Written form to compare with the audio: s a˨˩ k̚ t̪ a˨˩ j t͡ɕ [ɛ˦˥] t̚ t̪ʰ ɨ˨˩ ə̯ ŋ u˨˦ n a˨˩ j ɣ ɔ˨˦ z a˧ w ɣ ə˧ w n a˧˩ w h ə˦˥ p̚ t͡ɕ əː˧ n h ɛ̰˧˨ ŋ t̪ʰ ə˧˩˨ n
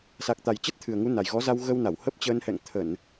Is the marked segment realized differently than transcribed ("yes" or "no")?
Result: yes